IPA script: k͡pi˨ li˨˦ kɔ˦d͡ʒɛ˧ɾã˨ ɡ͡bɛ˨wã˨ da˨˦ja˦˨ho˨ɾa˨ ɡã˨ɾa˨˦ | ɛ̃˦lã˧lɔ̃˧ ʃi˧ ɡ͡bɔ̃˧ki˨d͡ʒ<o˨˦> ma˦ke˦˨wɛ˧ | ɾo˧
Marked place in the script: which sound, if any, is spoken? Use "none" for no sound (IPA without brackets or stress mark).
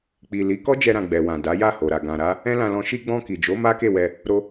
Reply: o˨˦